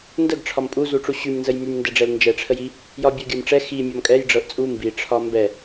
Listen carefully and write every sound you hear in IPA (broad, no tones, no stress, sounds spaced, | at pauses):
n d ə ɡ ʈ͡ʂʰ ɒ m pʼ u z u ʈ͡ʂ u ɕ y m n z ə j m y m n d ɛ ɖ͡ʐ ɛ l n d͡ʒ ɛ ʈ͡ʂʰ ə j i | j ɒ bʲ ə˞ ɡʲ ə˞ m ʈ͡ʂ ɛ x i mʲ ɒ m kʼ ɛ j ɖ͡ʐ ɤ ʔ t͡sʼ u m b i ʈ͡ʂʰ ɒ m b ɛ